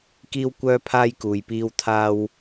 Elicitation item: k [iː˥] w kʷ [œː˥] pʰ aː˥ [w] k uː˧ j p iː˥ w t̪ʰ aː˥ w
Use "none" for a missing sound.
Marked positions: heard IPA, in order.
iː˥, œː˥, j

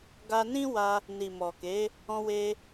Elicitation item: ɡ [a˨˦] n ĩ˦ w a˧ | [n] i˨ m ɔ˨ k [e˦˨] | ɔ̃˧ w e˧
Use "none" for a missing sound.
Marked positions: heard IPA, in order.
a˧, n, e˨˦

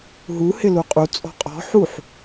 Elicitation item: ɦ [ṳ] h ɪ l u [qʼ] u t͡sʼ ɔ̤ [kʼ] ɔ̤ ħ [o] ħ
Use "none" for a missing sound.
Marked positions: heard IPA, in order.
u, qʼ, qʼ, u

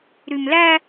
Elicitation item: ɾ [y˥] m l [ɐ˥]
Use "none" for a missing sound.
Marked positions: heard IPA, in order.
y˥, æ˥

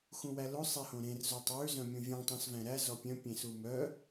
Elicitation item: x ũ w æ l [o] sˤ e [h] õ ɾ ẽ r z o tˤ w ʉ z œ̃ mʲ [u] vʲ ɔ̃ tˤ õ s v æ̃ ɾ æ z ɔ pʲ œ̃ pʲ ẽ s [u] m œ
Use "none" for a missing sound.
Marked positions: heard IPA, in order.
o, h, ũ, u

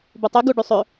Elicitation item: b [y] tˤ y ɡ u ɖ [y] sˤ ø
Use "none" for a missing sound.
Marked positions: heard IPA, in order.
u, y

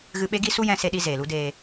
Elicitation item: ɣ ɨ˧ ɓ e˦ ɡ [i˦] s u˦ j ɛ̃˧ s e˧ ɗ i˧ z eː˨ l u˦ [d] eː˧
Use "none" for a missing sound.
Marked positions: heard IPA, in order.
i˦, d

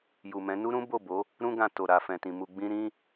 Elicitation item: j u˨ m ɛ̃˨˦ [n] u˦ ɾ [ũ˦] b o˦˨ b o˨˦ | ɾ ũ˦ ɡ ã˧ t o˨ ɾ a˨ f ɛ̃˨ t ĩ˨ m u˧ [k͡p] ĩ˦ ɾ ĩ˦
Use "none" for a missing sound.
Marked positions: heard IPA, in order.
n, ũ˦, ɡ͡b

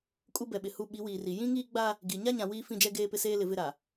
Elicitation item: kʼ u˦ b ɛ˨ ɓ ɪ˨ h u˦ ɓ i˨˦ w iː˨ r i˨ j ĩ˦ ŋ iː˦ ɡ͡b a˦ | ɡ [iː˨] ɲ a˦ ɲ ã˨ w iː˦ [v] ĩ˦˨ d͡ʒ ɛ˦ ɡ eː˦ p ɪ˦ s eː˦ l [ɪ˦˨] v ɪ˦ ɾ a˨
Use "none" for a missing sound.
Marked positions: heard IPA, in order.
i˨, f, ɪ˨

